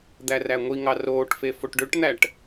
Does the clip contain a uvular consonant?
no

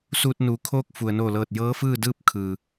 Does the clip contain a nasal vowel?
no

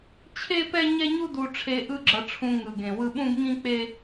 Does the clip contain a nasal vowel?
yes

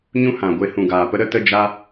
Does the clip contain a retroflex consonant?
no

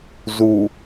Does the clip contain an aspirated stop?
no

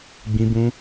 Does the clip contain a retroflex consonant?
no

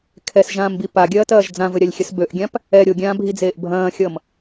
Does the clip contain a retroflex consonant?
no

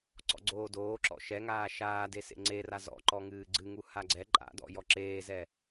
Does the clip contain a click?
yes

